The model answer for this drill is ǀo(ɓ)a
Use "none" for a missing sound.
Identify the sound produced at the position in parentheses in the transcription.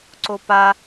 p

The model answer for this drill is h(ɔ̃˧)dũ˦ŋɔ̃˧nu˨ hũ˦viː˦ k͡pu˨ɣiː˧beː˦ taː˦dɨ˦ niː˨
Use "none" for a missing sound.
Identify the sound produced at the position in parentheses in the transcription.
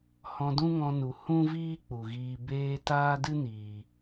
ɔ̃˧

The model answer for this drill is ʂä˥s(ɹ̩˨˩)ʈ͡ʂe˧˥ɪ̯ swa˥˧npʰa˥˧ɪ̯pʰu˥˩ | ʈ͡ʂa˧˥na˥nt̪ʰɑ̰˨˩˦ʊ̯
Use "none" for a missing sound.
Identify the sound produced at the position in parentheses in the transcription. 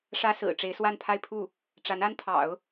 ɹ̩˨˩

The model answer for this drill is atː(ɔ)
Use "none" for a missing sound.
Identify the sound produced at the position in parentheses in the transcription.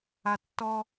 ɔ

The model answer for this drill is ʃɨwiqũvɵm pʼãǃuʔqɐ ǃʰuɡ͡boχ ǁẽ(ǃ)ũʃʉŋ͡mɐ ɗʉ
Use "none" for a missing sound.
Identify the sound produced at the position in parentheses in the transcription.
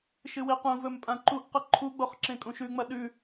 kʼ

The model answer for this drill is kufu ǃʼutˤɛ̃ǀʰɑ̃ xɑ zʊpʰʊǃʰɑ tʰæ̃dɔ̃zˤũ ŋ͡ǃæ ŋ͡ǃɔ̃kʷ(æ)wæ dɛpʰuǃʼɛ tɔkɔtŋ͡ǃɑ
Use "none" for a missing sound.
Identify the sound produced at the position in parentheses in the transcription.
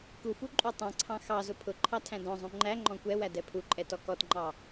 ɛ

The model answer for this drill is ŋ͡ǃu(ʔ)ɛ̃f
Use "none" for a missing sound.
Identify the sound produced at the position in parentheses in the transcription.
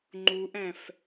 ʔ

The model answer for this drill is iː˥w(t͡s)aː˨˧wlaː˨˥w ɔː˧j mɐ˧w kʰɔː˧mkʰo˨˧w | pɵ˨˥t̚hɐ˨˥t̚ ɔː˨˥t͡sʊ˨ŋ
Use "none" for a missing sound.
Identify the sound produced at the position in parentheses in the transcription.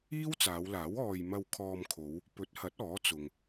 t͡s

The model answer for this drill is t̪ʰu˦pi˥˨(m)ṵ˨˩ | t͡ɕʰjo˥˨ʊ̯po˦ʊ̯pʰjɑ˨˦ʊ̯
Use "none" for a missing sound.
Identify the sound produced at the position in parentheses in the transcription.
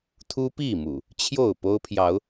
m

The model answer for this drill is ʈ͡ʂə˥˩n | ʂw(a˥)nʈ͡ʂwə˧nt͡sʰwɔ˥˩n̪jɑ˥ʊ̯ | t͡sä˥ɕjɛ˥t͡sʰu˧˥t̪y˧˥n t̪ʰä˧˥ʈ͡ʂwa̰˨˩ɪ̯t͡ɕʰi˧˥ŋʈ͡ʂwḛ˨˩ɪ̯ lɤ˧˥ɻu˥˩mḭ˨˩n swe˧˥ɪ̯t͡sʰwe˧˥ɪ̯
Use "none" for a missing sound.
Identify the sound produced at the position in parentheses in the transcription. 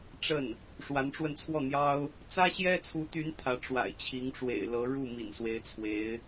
a˧˥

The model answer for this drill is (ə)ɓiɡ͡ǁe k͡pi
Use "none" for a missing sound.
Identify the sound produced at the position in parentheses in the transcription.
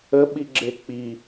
ə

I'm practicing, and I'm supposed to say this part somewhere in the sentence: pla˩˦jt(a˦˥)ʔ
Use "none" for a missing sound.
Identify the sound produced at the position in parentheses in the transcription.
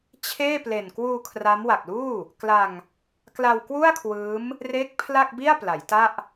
a˥˩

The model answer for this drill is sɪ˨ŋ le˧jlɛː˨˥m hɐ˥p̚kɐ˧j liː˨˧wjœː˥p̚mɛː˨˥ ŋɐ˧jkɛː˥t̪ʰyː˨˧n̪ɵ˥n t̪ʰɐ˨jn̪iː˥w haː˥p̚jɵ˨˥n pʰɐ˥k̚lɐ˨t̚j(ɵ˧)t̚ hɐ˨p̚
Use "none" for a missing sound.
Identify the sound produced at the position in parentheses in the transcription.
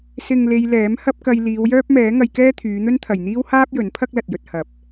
ɵ˧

